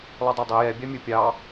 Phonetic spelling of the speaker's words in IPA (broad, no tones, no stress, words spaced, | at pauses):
lˠʉdˤodˤɛ jɛ bʲɑmʲɵ pʲɑ